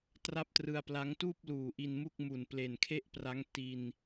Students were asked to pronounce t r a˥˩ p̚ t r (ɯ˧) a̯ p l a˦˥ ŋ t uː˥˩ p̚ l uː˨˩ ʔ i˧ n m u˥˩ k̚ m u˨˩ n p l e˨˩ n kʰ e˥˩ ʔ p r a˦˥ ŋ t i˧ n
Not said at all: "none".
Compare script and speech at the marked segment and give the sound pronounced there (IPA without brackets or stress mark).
ɯ˧